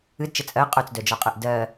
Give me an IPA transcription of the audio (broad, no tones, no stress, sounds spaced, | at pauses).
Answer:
ɨ d t͡ʃ ə t͡sʼ ɜ qʼ œ t͡s d œ d͡ʒ ɔ qʼ ɜ ʔ d ɜ